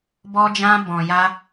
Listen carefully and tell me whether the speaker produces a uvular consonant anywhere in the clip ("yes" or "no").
no